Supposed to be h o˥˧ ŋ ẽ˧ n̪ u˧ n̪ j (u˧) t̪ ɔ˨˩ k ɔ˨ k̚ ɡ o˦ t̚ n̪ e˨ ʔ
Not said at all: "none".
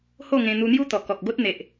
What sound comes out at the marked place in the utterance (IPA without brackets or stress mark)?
u˦